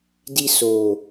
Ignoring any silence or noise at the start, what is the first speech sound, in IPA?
d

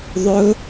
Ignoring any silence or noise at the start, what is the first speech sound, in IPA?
ðˤ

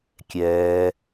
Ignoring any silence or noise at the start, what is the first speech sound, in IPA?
kʲ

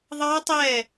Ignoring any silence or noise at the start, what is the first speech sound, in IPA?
ðˤ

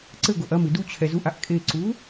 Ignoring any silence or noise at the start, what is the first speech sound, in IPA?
ǀ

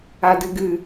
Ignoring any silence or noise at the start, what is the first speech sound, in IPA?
a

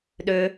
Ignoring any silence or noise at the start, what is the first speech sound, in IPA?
ɗ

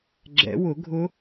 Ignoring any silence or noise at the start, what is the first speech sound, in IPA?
ɡ͡ǁ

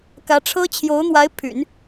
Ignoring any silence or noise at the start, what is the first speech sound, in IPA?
k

